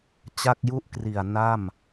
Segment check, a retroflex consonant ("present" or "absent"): absent